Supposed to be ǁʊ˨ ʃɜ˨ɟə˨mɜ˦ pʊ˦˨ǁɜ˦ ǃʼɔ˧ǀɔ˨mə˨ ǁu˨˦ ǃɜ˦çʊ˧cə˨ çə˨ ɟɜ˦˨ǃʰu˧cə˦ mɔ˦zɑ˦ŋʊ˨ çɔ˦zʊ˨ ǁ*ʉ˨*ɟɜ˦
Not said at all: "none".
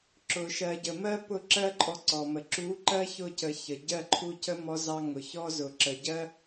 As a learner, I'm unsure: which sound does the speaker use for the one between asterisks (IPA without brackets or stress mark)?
ə˨